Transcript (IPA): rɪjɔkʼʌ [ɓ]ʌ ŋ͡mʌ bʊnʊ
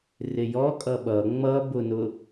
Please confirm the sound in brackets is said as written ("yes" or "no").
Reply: yes